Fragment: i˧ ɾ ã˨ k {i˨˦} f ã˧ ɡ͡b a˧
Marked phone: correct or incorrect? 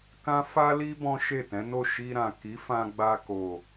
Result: correct